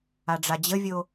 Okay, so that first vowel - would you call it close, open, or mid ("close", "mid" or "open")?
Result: open